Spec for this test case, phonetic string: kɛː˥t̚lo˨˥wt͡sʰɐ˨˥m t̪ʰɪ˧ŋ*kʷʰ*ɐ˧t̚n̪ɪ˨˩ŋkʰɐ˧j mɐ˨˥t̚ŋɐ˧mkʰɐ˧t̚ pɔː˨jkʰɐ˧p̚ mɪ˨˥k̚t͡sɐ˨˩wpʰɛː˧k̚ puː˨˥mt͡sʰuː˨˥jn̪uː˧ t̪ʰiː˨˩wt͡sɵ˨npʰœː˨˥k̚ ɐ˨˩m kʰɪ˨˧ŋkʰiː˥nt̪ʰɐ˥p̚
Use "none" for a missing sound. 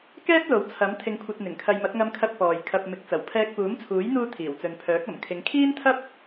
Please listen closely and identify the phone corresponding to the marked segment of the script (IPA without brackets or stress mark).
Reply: kʷʰ